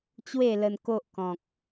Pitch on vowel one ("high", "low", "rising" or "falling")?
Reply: falling